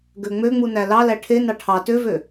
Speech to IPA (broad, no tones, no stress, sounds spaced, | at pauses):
ɡ ø ŋ͡m ø ŋ͡m u n æ l ɑ l æ ʈʰ e n ɑ ʈʰ ɑ t ø v ø